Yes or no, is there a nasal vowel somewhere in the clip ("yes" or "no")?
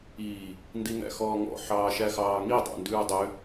no